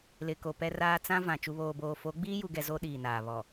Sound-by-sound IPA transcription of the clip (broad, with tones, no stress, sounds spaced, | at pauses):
l ɪ˨ k o˨ p ɛ˦ r aː˦ t͡s ã˦ v ã˨ t͡ʃ u˨ β oː˨ b oː˨ f o˨˦ ɡ͡b iː˦ j u˨ ɡ ɛ˨ z o˦ ɗ iː˨ n aː˨ β ɔ˨